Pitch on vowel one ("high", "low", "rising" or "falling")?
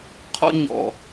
high